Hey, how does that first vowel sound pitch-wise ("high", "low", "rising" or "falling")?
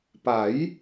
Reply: rising